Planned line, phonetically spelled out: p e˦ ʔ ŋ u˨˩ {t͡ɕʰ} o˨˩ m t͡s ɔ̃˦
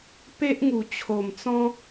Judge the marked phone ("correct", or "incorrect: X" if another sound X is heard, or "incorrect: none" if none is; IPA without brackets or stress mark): correct